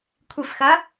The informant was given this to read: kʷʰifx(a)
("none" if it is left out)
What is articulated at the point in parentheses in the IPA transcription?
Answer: ɐ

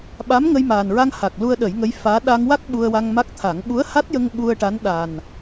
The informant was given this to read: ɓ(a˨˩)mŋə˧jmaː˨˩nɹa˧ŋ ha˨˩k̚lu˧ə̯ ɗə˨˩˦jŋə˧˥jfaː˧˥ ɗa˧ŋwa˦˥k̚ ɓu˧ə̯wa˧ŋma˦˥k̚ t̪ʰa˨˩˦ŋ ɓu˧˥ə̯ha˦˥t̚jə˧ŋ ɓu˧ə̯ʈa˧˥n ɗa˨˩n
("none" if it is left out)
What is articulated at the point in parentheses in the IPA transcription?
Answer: a˧˥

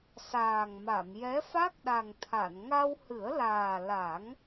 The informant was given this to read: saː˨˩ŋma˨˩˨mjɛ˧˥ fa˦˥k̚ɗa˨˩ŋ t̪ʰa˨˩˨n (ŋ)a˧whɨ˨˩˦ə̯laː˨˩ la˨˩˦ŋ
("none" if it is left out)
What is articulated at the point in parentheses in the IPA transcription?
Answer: ŋ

